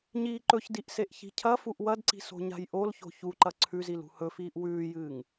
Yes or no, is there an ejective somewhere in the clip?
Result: no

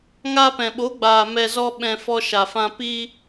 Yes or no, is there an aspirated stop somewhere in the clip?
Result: no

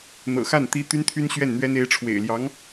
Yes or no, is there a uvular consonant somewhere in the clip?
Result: no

